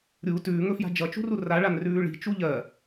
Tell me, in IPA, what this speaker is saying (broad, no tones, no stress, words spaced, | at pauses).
ɾʲu tʉːŋɵfja̤ d͡ʒʌt͡ʃṳru raɭanrʉː ɭi̤t͡ʃu ʎɜ